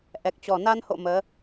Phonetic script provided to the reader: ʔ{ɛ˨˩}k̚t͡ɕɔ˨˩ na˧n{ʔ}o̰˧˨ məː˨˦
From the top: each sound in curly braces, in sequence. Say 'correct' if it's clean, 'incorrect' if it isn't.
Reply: correct, incorrect: h

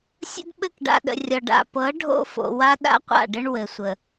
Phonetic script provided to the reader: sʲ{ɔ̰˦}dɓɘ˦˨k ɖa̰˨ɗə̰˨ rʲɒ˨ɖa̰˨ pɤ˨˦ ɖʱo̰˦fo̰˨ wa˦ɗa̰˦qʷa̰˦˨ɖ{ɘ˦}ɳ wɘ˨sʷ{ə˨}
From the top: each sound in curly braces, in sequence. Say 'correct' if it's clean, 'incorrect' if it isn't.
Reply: incorrect: ə̰˦, correct, correct

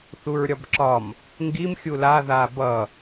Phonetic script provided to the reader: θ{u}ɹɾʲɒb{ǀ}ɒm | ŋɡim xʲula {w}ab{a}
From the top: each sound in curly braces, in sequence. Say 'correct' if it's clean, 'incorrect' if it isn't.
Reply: correct, incorrect: ǁ, incorrect: ð, incorrect: ʌ

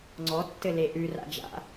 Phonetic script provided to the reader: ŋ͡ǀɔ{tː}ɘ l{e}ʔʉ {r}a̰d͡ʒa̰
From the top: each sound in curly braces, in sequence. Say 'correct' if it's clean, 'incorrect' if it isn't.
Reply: correct, correct, correct

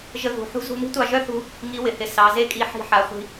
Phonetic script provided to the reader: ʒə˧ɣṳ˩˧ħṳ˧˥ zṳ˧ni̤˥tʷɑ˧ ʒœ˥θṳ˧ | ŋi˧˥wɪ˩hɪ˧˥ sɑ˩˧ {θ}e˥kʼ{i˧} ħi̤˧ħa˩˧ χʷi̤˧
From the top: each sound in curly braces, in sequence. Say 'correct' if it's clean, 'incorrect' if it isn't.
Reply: incorrect: z, correct

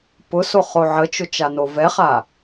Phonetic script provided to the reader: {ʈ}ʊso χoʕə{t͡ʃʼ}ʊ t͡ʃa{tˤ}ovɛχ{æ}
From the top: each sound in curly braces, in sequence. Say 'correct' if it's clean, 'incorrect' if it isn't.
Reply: incorrect: p, incorrect: t͡ʃ, incorrect: n, incorrect: a

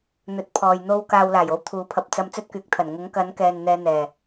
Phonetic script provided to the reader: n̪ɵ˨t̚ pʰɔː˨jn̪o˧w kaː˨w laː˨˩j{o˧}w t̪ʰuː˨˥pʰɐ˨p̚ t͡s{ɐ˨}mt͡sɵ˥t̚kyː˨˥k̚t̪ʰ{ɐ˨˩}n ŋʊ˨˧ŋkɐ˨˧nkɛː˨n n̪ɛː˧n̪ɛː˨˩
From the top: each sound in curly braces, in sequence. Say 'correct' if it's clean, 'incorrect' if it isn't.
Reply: correct, incorrect: ɐ˧, correct

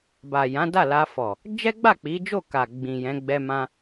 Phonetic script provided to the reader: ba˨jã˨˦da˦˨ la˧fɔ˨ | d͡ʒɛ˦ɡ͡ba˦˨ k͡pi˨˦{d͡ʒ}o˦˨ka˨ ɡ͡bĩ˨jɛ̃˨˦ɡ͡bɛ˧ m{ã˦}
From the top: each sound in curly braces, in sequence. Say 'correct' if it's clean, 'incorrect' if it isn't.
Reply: correct, correct

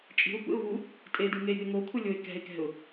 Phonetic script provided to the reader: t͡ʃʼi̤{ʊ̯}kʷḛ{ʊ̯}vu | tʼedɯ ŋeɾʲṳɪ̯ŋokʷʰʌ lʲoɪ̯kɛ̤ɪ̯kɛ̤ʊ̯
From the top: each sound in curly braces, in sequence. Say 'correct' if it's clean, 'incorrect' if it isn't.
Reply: correct, correct

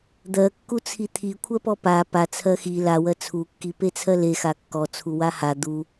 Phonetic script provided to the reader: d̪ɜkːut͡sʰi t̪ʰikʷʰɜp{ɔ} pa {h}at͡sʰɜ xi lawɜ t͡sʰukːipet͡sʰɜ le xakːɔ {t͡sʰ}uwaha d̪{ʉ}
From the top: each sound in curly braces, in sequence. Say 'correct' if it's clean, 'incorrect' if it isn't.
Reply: correct, incorrect: p, correct, incorrect: u

